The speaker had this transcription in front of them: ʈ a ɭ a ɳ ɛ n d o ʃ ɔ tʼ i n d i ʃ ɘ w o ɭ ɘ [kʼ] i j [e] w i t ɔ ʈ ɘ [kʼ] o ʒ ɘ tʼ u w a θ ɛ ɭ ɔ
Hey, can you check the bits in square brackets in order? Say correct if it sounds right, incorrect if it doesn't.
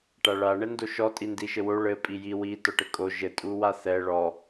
incorrect, incorrect, correct

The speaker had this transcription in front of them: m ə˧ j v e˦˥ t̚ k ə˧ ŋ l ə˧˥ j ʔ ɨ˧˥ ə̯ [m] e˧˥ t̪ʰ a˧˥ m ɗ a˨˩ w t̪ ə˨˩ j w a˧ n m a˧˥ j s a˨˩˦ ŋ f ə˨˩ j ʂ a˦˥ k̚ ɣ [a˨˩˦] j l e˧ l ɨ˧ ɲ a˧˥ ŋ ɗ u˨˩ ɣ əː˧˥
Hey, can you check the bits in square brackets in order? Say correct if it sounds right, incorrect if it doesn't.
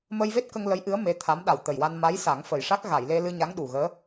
correct, incorrect

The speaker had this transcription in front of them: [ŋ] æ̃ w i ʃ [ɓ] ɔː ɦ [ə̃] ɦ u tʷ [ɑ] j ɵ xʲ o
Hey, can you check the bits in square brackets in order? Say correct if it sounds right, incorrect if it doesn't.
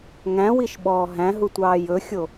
correct, correct, incorrect, incorrect

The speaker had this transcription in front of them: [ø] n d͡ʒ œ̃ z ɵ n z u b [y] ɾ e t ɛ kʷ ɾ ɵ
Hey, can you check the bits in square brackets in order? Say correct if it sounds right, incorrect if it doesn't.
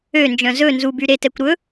correct, correct

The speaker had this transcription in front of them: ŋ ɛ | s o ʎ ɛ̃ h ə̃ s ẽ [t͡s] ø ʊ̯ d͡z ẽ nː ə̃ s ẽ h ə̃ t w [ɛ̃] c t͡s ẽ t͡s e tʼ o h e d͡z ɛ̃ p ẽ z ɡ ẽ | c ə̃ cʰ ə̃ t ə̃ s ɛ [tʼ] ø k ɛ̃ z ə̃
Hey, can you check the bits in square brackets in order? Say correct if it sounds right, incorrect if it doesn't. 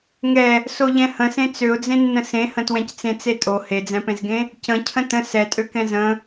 correct, correct, correct

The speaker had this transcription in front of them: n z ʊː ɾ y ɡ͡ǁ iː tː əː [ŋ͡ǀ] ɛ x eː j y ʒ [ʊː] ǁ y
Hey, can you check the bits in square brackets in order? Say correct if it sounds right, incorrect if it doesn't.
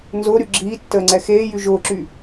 correct, correct

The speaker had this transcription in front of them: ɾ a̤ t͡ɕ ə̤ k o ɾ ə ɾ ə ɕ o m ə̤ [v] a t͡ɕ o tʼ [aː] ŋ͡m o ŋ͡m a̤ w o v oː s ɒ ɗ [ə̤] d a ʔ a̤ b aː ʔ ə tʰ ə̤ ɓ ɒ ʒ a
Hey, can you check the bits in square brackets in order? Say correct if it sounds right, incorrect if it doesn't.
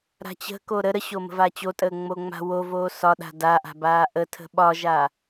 correct, incorrect, incorrect

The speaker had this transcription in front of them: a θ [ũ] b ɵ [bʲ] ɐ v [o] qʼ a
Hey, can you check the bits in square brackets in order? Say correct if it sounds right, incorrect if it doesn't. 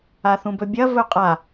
correct, correct, incorrect

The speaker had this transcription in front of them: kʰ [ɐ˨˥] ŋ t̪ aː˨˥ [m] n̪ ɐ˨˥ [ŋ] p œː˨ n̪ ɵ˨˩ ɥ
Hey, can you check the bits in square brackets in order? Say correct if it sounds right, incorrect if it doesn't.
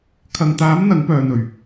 incorrect, correct, correct

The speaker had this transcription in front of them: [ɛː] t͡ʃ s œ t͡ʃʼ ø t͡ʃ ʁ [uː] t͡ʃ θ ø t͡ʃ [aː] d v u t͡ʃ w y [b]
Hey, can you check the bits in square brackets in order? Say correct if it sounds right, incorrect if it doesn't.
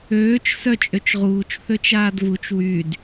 incorrect, correct, correct, incorrect

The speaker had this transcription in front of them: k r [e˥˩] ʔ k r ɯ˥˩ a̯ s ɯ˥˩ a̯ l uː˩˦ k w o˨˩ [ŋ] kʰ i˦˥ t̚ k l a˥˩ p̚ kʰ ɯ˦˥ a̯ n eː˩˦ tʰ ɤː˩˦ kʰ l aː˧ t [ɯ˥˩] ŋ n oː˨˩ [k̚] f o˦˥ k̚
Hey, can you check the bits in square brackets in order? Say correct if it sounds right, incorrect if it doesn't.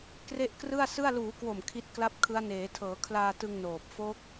correct, incorrect, incorrect, incorrect

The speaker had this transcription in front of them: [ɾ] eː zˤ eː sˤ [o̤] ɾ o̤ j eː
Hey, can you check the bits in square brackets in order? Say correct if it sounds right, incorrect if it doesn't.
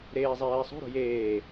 correct, correct

